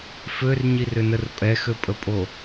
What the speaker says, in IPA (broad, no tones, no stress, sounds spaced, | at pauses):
f ø r ɲ i r ʏ n ə r pʼ ɛ x ø pʼ ə pʼ o